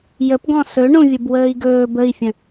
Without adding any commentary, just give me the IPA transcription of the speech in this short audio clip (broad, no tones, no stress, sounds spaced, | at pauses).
j ə p ɡ ɔ̃ s ɵ ɳ ũ vʲ ə b w əː i̯ ɡ ɵː b ə i̯ fʲ ə̃